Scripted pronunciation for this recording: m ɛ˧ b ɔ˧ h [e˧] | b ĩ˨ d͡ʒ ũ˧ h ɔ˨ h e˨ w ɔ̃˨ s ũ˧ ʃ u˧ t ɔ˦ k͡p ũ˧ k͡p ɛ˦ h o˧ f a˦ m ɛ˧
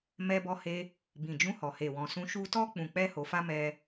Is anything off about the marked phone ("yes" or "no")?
no